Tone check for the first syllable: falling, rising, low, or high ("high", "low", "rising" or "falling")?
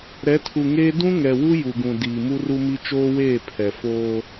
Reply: rising